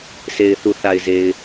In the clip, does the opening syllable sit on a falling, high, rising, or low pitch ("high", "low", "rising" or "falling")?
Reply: low